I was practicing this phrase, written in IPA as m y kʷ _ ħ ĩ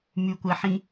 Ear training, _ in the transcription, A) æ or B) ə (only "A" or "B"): A